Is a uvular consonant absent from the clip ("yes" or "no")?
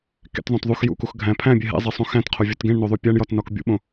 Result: no